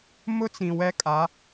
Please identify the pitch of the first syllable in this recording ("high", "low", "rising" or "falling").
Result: high